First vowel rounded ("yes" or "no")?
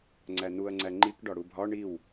no